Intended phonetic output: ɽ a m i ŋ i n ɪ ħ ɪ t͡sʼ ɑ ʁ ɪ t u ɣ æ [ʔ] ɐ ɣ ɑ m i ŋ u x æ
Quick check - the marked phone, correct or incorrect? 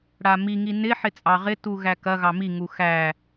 incorrect